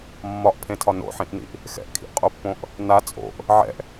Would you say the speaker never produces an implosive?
yes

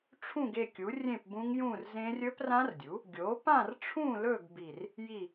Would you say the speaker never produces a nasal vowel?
no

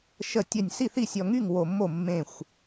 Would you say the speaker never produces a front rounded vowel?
no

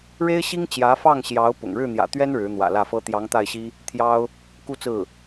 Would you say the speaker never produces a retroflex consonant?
no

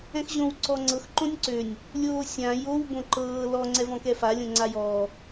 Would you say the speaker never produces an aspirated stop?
yes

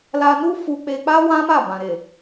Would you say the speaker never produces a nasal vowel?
no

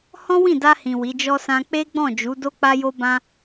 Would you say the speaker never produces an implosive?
yes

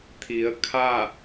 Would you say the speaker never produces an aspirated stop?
no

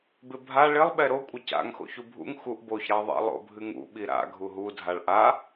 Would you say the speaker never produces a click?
yes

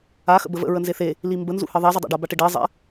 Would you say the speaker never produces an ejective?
yes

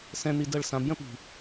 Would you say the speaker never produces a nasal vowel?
no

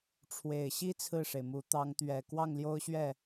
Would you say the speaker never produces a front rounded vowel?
yes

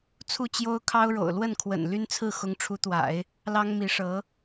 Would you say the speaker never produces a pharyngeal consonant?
yes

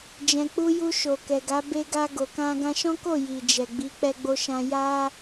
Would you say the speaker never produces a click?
yes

